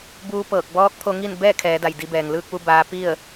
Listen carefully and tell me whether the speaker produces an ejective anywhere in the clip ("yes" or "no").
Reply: no